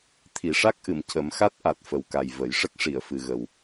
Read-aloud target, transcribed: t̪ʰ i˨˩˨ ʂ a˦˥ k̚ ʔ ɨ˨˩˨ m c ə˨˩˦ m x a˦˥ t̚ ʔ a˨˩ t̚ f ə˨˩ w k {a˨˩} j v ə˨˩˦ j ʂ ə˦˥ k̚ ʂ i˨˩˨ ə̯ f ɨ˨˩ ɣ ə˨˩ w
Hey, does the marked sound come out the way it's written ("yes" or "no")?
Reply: yes